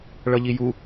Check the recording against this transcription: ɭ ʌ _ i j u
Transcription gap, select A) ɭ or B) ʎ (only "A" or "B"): B